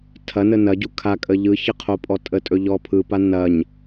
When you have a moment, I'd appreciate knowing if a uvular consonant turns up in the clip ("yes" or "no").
yes